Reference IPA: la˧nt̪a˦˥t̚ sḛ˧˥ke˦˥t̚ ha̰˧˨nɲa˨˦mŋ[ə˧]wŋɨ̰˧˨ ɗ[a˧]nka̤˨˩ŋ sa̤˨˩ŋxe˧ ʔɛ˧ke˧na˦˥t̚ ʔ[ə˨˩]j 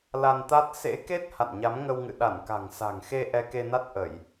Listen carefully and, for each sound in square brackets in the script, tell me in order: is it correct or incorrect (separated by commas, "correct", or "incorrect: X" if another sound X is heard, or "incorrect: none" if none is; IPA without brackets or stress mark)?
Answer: correct, incorrect: a˧˩, incorrect: ə˧˩˨